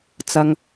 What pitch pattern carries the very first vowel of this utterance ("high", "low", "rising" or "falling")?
low